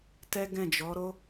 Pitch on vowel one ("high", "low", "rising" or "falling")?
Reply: high